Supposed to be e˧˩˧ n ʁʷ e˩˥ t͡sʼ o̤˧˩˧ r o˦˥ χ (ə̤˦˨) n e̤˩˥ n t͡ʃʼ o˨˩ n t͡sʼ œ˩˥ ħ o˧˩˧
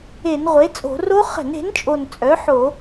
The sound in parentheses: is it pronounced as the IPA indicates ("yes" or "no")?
no